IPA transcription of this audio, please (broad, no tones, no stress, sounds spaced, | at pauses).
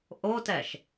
ʔ o t ɛ ʃ